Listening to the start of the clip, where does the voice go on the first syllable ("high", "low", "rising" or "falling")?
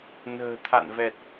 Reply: low